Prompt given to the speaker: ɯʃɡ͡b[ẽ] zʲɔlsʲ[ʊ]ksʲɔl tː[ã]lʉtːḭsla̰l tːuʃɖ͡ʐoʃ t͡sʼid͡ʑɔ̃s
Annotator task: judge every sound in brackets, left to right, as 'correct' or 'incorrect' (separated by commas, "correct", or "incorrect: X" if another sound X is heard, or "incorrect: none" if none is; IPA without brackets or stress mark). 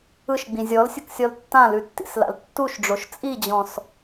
incorrect: ĩ, correct, correct